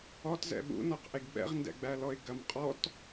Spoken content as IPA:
ɔ t z ɛ̰ ɓ ṵ n ɔ q ʔ e ɡ ɓ ɛ̰ ʁ n d ɛ̰ ɡ͡b æ l ɔ ɪ̯ ɡ ɐ m qʼ ɔ t

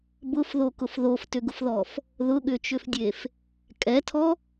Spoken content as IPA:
b ʊ f ð o k ʊ f ð o f t ʏ ɡ ʊ f ð ɔ f | ð ʊ ɠ ʏ t͡ʃ ʏ f dʲ e f | kʼ ɛ tʰ ɔ

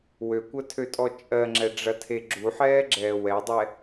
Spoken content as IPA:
w ø kʷ ɜ tʰ ø tʼ ɔ t͡ʃʼ ɜ ŋ͡ǁ ɛ ɖ͡ʐ ɐ tʰ e ɡ͡ǁ u ħ ɛː ɡ͡ǁ ɛː w ɛ dˤ ɛ

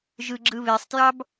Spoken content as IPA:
ʒ ɯ ɡ͡ǁ ɯ β e sˤ t j ɑ b

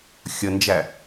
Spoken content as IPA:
xʲ ə n d͡ʒ æ

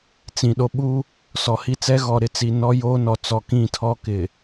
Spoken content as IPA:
t͡s ĩ˨ ɗ o˦ ɓ u˦ | s ɔ˨ h i˦ t͡s ɛ˦ ɣ ɔ˨ ɾ ɪ˦ t͡s i˨ n ɔ˦ j o˦ n ɔ˨ t͡s ɔ˨ k ĩ˦˨ tʰ ɔ˦ k ɪ˨

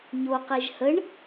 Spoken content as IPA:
ɲ o q e ʒ h ə ɳ

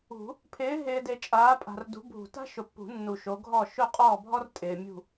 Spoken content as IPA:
ṳ˨˩˦ | pʰ ɪː˨˦ ɦ ɪː˨ d e˨ t͡ʃʼ aː˨˦ pʼ a̤˨ r d ṳ˨˦ bʱ ṳ˨˩˦ t a̤˥ ʃ ʊ˨ pː ṳ˨˩˦ nː u˨ ʃ o˨˦ ɡʱ ɔ˥˨ ʃ ʊ˥˨ qʼ ɔː˥˨ bʱ ɔ˥ r tʼ ɪː˨ mʲ ṳ˥˨

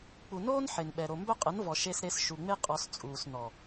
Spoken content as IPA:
k͡p u˨ n oː˦ n ħ e˨ n ɓ ɛ˨ ɾ o˨ m b œ˦ qʼ ə˨˦ n v ɔ˨ ʃ e˧ s ɾ e˧ s ʃ u˨ ŋ͡m e˦ qʼ ɔ˧ s t͡sʼ uː˨ s n ɔ˨

